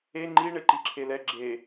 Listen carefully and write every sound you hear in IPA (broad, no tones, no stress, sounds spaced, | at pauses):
e ŋ͡ǃ i ɳ e ǃ i ǁʰ e l ɛ ɡ͡ǁ e